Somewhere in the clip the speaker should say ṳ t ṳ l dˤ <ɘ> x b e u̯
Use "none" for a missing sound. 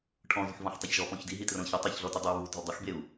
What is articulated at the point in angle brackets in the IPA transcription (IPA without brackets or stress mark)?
ɘ